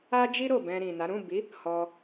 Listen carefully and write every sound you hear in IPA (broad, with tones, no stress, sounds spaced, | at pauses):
a˦ d͡ʒ i˦ ɾ o˦˨ b ɛ̃˧ ɾ ĩ˨ n a˨˦ ɾ ũ˦˨ b i˨˦ | h ɔ˧